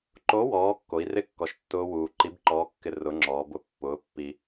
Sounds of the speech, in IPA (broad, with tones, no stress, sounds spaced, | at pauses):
ǃ o˨˥ w ɔː˩˧ kː o˩˧ i̯ r ɪ˦˥ kː ɔ˨˩ ʃ tː ʊː˦˥ w uː˨˩ ǃ i˨˥ b ǃ ɔː˨˥ kː ɪ˧ r ʊ˨˥ ŋ͡ǁ ɔː˩˧ b ʊ˨˩ pː ʊː˨˥ pː i˧